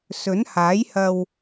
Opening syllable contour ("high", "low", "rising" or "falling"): rising